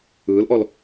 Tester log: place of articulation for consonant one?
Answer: alveolar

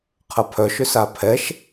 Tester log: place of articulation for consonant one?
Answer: uvular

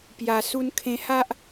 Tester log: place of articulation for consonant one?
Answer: labial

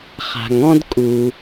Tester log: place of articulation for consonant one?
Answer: uvular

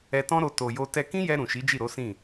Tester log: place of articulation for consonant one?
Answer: alveolar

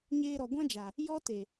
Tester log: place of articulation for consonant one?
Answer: palatal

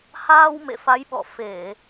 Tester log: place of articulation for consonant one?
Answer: glottal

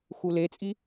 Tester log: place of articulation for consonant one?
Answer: velar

